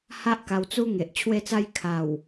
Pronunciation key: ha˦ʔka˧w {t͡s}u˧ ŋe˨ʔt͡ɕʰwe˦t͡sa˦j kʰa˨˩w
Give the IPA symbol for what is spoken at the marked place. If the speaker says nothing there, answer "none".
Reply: t͡s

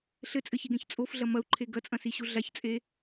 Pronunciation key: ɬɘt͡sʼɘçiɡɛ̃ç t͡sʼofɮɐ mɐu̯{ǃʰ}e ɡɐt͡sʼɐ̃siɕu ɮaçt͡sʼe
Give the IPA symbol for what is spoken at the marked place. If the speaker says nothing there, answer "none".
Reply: ǃʰ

